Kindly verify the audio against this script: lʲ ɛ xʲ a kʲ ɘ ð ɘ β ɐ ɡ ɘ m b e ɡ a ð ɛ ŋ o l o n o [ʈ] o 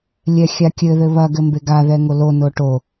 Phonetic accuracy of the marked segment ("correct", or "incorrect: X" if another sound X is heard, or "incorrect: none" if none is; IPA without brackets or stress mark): correct